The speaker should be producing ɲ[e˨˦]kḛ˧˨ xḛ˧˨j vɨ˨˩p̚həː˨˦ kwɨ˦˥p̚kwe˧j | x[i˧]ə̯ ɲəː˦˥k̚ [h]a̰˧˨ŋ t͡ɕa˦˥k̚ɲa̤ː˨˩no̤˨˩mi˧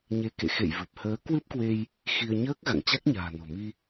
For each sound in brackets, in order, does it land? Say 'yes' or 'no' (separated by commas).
yes, yes, no